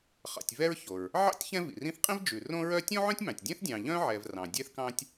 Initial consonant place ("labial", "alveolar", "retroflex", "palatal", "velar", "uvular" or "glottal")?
uvular